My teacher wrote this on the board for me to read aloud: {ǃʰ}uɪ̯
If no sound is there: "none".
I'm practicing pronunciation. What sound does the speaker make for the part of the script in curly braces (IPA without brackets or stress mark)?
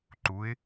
ǃ